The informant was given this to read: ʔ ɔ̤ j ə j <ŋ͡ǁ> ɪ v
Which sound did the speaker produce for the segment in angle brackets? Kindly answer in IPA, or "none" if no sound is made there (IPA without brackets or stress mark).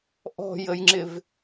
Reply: ŋ͡ǁ